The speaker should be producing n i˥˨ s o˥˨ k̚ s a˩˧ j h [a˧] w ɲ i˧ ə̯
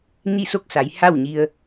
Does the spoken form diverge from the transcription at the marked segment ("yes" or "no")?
yes